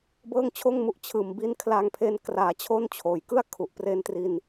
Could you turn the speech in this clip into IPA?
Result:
b ɤː˥˩ ŋ t͡ɕʰ oː˥˩ ŋ m u˥˩ ʔ t͡ɕʰ ɯː˨˩ m b i˦˥ n kʰ l a˧ ŋ pʰ e˧ n k r aː˩˦ t͡ɕʰ o˥˩ n t͡ɕʰ oː˨˩ j k ɯ˥˩ a̯ kʰ u˨˩ ʔ p r e˧ n t r i˧ n

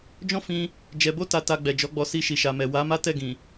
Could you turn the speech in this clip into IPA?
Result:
d͡ʒ ɔ̃˦ f ĩ˧ | d͡ʒ ɛ˧ b o˦ t a˧ t a˧ ɡ͡b ɛ˨ d͡ʒ ɔ˨˦ ɡ͡b ɔ˧ s i˧ ʃ i˨ ʃ a˨ m ɛ˨ w a˨˦ m a˦ t ɛ˦˨ ɡ ĩ˨

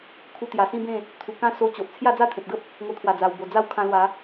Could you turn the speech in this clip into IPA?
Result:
kʰ u˧ t̪ j a˨˩ s ĩ˦ b ẽ˥˧ | t̪ʰ u˨˩ k ã˦ s o˧ t͡ɕ o˨ ʔ t͡sʰ j a˥˧ d͡z a˥˧ t̪ʰ ẽ˨ p̚ ɡ ə˦ p̚ | ŋ o˧ t̪ʰ w a˨˩ d͡z a˨˩ w b o˨˩ d͡z a˥˧ w kʰ ã˧ l w a˨˦

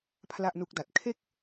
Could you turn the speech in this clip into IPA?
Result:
pʰ l a˥˩ ʔ n u˦˥ k̚ d a˨˩ t̚ kʰ e˥˩ k̚

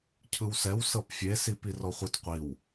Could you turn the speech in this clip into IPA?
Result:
cʰ ɯ w s ɛ w s ɤ p fʲ e s i p i r ɔ χʷ ɯ t qʷ i w

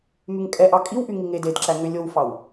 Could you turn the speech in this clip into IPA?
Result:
m y ŋ kʼ ɛ ʔ ɑ kʼ i w ʔ y ŋ i ŋ e d e d ǁ æ ŋ ø lʲ o w f ɑ w

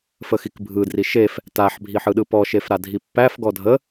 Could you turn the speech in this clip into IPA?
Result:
f ə x i k bʱ ɯ d r i ʃ e f | t a ħ bʱ i ħ ɯ ɗ ɯ p ɔ ʃ e f ɾ a dʱ i pː æ f ɡ ɔ dʱ ə

